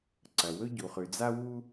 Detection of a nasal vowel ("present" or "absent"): absent